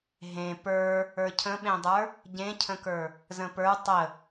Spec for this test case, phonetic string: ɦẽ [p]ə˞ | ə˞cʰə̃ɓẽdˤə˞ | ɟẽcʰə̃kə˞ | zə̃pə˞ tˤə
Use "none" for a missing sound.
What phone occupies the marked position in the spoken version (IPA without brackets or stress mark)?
p